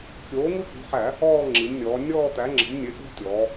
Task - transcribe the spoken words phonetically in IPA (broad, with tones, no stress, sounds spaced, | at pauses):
kʲ oː˩˥ ŋ u˦ k ṳ˩˧˩ ħ æ˧˩˧ | ɔː˦˨ ŋ͡ǁ i˩˧ m nʲ ɔː˩˧ nʲ ɔː˦˨ t̪ æ˩˥ ŋ͡ǁ ə̤˩˥ m nʲ e˩˥ ʔ ṳ˦ tʲ ɔː˩˧